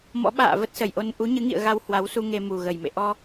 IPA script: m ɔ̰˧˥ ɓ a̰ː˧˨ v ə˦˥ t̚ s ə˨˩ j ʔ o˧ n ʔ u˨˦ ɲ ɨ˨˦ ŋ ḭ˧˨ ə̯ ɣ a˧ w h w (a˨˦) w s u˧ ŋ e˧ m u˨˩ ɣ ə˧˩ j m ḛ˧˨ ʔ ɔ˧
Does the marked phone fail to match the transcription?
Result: no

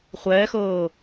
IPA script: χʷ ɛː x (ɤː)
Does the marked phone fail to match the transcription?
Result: no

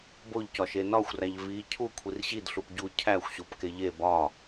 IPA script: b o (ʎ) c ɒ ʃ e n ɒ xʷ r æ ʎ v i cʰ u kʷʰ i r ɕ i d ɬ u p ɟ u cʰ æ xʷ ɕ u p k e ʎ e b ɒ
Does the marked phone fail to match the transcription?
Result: no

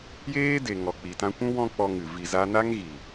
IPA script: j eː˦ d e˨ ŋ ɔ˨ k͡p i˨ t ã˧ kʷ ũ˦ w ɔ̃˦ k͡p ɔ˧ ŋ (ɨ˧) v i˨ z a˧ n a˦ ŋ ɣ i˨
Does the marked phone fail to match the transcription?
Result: yes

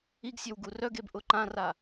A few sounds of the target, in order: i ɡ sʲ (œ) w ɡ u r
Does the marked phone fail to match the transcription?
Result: yes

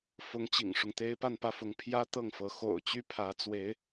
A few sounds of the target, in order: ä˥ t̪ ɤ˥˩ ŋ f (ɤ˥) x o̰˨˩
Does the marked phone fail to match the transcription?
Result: yes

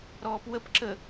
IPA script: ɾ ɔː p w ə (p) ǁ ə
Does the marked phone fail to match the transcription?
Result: no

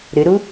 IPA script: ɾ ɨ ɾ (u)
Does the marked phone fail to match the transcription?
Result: no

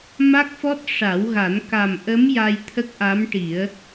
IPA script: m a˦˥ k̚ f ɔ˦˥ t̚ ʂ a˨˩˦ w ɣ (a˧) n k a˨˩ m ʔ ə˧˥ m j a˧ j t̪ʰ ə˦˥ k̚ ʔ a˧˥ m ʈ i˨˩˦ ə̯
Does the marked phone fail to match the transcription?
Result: yes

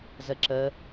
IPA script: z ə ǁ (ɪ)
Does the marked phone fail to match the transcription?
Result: yes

